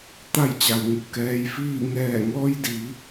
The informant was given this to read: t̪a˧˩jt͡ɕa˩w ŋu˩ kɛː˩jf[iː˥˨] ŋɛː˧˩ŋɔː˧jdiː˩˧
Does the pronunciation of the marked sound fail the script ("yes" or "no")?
yes